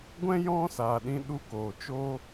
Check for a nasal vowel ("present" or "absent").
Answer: present